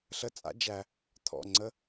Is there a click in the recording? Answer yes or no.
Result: yes